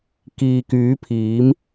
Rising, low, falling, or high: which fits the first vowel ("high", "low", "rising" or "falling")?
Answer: low